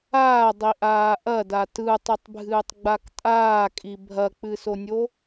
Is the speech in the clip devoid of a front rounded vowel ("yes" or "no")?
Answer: yes